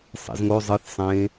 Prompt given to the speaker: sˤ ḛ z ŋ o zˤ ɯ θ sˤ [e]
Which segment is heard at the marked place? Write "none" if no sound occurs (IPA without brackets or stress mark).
ẽ